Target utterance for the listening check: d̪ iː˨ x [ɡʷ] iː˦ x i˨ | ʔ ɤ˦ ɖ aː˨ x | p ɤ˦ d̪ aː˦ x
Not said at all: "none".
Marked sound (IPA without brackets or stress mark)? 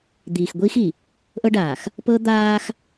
ɡʷ